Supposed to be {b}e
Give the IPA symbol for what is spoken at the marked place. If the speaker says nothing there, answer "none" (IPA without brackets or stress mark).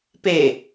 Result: p